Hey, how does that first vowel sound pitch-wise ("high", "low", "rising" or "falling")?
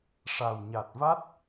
low